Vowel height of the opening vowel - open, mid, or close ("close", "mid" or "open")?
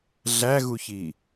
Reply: open